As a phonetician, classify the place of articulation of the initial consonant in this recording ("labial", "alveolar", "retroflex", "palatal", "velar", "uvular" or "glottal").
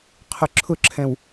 uvular